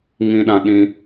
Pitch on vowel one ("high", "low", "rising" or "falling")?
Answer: high